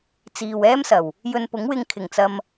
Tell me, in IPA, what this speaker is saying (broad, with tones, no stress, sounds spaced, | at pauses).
t͡s iː˨ w ɛː˥ m s ɐ˨˩ w | j ɵ˧ n p ʊ˨˥ ŋ w ɪ˧ ŋ kʰ ɪ˨˩ ŋ t͡s ɐ˧ m